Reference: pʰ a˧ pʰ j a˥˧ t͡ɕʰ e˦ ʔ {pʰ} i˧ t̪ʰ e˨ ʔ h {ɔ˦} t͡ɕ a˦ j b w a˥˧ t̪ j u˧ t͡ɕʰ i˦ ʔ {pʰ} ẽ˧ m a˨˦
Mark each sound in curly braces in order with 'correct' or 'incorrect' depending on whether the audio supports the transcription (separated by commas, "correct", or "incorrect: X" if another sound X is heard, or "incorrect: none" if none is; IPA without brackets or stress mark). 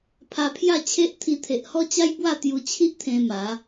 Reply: incorrect: t̪ʰ, correct, incorrect: t̪ʰ